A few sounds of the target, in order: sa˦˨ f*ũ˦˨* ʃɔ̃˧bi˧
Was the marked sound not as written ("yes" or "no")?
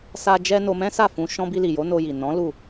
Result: yes